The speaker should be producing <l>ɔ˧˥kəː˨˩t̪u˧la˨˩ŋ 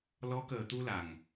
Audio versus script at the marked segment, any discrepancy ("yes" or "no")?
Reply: no